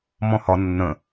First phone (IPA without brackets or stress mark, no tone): m